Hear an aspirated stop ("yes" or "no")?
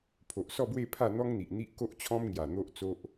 yes